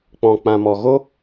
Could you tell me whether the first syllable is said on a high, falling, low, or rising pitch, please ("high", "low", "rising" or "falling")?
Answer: low